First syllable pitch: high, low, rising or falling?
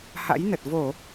rising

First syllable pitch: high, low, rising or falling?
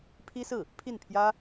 high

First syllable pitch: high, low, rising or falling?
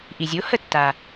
low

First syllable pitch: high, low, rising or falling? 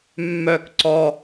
low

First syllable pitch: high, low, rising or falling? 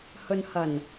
low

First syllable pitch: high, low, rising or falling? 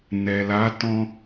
low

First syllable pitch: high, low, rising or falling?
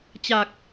low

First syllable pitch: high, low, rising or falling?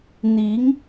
rising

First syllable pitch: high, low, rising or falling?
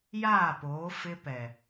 falling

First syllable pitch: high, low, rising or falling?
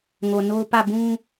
low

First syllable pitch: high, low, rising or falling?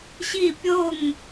falling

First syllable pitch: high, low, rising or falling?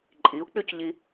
rising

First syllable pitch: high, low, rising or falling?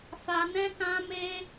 high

